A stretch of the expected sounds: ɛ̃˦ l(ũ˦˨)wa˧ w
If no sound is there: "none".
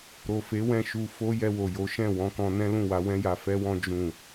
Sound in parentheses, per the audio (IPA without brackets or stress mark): ũ˦˨